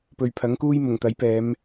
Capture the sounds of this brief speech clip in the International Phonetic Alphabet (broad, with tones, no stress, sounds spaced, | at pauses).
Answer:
p ɵ˨ ɥ pʰ ɐ˨˥ ŋ k uː˥ j m ʊ˨˩ ŋ t̪ ɐ˨˥ j p ɛː˨˧ m